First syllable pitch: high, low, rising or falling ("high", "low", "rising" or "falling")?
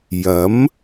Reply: rising